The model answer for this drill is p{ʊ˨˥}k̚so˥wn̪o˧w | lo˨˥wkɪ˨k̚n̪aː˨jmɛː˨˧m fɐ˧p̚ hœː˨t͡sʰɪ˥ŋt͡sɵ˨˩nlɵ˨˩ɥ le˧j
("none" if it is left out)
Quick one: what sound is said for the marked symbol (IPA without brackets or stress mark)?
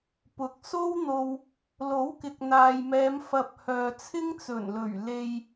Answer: ʊ˨˥